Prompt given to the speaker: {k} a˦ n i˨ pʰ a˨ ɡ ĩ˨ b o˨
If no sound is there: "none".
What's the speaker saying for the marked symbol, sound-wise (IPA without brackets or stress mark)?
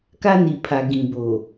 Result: k